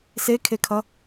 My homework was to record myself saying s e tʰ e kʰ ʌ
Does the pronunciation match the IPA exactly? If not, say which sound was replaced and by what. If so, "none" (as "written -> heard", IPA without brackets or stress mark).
tʰ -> kʰ